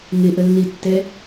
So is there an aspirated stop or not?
no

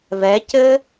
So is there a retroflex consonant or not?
no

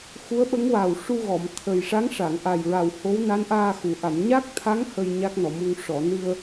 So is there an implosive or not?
yes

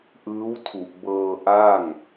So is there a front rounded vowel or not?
no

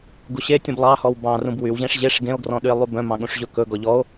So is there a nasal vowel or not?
yes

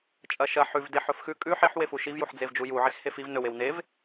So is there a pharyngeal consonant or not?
yes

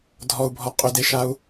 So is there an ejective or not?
yes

